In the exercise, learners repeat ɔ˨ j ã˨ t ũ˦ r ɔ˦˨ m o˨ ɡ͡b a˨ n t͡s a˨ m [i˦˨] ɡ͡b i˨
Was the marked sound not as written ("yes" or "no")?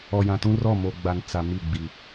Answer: no